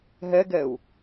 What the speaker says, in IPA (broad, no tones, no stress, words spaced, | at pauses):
ɦɛɡɛu̯